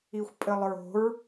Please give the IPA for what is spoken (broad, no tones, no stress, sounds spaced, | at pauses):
i xʷ pʼ ɘ lˠ ɹ o̤ ɹ